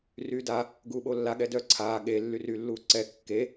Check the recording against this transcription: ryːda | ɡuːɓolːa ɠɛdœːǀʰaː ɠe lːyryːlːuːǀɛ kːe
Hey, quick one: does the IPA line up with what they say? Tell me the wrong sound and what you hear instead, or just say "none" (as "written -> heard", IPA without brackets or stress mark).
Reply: none